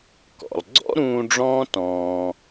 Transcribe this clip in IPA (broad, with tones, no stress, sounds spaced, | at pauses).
k ɔ̰˨ lˠ ɡ͡ǀ ɔ̰˦ ɾ ũː˧ ɖ͡ʐ ɔ̃ː˦ t ɔ̃ː˧